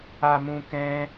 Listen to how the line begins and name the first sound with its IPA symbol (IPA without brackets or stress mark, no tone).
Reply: a